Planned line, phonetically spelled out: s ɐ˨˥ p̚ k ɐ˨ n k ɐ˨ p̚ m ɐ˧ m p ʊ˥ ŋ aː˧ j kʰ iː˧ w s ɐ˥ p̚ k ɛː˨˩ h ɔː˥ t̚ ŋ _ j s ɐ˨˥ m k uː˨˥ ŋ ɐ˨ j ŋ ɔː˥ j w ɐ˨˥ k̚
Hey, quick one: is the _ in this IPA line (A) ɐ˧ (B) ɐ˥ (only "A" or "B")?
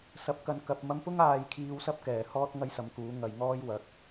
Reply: B